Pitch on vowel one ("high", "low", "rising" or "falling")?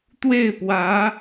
falling